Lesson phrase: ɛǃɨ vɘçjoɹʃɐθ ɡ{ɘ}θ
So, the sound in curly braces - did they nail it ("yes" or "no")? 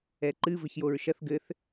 yes